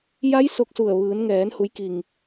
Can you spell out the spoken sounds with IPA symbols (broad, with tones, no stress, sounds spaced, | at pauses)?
j a˧˥ j s o˧ k̚ s u˧˩ ə̯ ʋ ɯː˩˧ n ŋ ɛː˩˧ n h u˩˧ j k i˩ ŋ